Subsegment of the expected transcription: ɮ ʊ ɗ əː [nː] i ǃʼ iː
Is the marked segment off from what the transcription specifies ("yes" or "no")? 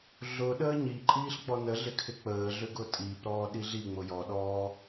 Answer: yes